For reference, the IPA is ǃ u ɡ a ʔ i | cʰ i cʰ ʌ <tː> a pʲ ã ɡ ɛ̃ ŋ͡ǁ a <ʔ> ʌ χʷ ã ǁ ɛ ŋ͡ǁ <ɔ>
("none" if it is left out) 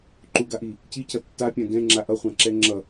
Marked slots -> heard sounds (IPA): tː, ʔ, ʌ

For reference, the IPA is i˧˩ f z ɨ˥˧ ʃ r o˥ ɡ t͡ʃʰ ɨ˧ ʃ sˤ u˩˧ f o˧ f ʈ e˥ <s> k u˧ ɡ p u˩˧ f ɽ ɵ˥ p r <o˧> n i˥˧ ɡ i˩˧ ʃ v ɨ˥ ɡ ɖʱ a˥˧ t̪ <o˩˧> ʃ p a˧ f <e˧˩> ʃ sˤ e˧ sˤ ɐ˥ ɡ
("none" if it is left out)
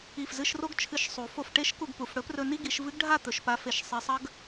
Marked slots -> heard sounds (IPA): ʃ, ɵ˧, ɵ˩˧, e˧˩

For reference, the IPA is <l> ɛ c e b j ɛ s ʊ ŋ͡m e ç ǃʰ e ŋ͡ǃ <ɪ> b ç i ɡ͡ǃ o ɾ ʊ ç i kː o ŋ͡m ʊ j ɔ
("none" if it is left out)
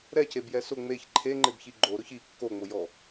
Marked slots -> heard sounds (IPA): ɾ, ɪ

